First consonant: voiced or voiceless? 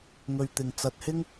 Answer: voiced